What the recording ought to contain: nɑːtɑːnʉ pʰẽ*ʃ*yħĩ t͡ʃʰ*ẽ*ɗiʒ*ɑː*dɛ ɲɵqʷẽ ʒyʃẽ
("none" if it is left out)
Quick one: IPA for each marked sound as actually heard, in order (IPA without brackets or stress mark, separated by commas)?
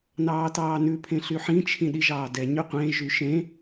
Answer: ɬ, ĩ, ɑː